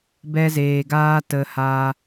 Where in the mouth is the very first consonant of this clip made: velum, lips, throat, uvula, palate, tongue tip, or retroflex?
lips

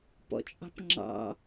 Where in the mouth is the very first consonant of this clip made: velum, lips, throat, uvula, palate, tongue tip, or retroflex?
lips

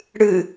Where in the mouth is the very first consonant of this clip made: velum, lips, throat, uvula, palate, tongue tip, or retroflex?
retroflex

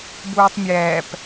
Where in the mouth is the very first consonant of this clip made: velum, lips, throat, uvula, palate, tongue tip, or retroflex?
lips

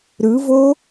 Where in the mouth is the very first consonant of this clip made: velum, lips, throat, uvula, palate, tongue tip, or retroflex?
tongue tip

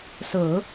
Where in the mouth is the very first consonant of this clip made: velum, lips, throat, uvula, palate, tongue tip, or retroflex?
tongue tip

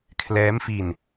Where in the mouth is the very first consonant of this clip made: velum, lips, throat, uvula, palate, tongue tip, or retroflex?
velum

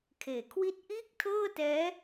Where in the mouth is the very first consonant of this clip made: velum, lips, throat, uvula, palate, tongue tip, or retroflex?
velum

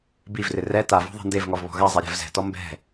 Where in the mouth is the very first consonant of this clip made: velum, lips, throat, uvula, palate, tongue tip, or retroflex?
lips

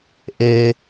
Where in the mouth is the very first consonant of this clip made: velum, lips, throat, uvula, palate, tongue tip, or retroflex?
throat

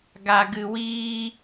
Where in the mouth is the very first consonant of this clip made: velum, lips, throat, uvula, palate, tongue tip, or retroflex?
velum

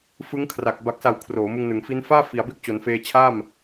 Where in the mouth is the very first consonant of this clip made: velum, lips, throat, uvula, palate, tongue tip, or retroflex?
lips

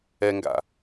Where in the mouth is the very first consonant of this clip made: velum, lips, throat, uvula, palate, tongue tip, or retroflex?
velum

